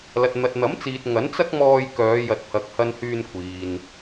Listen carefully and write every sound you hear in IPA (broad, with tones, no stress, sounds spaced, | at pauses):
l ɐ˨ t̚ n̪ ɐ˨ t̚ n̪ ɐ˨˥ m t͡s iː˨ t̚ ŋ ɐ˨˥ n t͡s ɐ˥ k̚ m ɔː˧ j k œː˨˧ j ɐ˨ t̚ pʰ ɐ˨ k̚ h ɐ˧ n h yː˧ n kʷʰ iː˨ n